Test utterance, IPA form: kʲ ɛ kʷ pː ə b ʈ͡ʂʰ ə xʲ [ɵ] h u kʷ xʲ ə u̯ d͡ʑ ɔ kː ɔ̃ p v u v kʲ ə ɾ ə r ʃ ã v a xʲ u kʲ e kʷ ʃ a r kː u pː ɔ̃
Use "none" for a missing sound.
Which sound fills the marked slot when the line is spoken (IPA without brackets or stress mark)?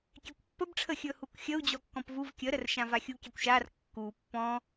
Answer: ɵ